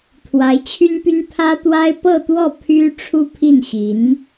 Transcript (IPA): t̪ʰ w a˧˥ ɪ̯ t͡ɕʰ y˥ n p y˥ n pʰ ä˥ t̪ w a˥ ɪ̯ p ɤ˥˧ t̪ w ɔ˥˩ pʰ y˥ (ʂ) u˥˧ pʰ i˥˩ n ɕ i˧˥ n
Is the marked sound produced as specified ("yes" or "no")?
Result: no